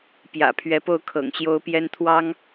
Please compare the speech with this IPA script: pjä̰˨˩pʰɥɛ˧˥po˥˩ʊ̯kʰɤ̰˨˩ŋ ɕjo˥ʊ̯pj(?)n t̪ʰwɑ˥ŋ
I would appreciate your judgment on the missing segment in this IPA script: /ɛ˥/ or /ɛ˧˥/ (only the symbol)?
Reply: ɛ˥